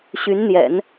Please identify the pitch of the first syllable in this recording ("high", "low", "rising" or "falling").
rising